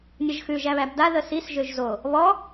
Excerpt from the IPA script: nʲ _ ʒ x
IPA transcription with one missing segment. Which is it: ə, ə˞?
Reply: ə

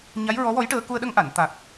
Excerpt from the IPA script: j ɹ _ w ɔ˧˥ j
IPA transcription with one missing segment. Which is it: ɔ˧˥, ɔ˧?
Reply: ɔ˧˥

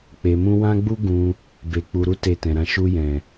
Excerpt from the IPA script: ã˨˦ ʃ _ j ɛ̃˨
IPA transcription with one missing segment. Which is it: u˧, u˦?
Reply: u˧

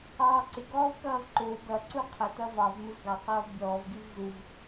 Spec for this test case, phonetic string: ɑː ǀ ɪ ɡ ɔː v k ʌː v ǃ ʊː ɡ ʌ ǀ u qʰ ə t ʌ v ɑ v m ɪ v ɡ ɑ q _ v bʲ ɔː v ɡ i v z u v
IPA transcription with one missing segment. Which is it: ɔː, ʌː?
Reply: ʌː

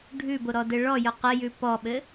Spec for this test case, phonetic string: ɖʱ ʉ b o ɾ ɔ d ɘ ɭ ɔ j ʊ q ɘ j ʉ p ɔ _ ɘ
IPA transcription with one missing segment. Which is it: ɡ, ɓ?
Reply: ɓ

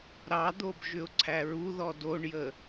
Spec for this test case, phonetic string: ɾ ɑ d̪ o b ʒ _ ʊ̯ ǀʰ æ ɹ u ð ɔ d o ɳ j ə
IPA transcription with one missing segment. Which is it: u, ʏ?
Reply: ʏ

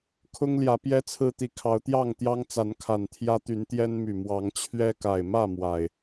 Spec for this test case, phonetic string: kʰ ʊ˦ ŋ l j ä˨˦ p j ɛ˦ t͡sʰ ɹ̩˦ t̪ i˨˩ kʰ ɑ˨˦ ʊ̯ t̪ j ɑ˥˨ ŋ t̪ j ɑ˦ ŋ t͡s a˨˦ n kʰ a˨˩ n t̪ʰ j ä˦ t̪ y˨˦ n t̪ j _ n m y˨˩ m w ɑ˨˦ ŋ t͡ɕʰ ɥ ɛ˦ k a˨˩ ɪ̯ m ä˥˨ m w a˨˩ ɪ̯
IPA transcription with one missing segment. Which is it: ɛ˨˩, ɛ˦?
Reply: ɛ˦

